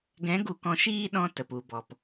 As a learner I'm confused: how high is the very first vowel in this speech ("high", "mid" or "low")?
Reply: mid